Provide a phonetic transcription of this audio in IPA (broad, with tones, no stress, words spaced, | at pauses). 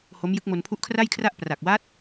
ho˦˥mjɯ˦˥k̚ mo˧npʰu˦˥ʔkʰra˥˩jkʰra˥˩ʔ pra˨˩k̚waː˦˥t̚